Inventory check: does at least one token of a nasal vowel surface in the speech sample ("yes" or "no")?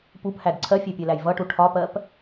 no